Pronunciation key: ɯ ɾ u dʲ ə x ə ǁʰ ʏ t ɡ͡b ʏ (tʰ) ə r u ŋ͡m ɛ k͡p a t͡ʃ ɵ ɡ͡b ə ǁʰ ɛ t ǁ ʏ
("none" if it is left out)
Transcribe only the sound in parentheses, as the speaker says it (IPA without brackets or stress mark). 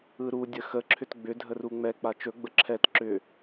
dʱ